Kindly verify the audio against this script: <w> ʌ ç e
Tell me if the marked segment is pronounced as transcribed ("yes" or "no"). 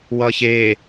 yes